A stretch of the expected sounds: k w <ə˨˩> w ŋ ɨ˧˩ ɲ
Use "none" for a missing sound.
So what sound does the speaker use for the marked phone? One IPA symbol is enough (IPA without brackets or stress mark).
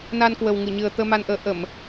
ə˨˩